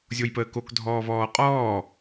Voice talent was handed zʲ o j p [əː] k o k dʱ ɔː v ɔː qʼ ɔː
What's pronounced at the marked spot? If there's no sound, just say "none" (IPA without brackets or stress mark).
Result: əː